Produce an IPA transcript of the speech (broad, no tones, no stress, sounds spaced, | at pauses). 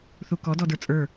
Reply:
θ u k ɔ d ɔ d ə˞ t͡sʼ ə˞